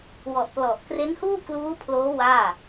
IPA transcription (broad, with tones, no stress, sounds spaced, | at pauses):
w ɔ˨˩ ʔ p l ɔ˨˩ ʔ k r e˦˥ n h uː˥˩ k l uː˦˥ pʰ l oː˦˥ w aː˥˩